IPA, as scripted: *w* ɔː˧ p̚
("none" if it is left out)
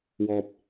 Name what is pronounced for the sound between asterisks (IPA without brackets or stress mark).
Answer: w